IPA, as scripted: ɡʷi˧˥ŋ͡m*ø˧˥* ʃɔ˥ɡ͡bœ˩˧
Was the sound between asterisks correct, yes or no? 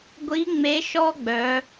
no